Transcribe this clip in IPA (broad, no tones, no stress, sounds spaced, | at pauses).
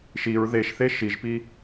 ʃ i ɹ ð e ʃ θ e ʃ i ʒ p i